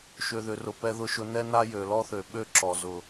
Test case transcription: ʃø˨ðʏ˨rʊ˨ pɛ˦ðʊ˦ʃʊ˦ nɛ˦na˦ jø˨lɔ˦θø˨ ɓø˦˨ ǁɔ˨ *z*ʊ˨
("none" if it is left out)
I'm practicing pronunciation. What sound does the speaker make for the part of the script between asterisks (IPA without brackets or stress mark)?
z